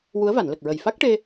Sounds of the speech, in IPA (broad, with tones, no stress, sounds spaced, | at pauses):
w u˧˥ ə̯ v a˨˩˨ n l ə˨˩ k̚ ɹ ə˨˩ j f a˦˥ k̚ ʈ e˧